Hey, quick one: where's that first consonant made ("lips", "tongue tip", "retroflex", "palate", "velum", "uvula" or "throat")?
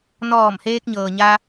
tongue tip